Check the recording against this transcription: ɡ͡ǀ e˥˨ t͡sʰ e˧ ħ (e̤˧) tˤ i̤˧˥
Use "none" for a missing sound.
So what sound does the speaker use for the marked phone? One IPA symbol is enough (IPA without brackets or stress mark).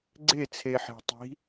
e̤˧